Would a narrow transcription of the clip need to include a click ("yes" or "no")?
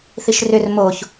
no